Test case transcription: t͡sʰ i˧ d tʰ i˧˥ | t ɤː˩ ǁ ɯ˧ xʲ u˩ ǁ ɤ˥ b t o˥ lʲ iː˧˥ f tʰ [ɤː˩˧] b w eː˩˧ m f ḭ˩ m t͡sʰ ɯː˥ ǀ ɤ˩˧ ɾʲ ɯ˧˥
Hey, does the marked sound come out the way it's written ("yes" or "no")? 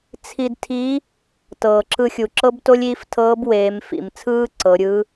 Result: no